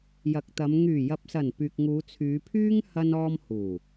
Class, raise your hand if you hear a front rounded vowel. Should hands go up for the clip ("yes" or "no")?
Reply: yes